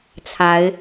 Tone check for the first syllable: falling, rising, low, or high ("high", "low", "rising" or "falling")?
rising